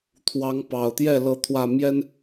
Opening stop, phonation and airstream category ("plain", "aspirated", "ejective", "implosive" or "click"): aspirated